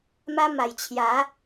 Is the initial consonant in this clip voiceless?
no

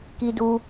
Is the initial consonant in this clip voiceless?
yes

